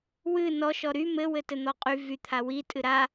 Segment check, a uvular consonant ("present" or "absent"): present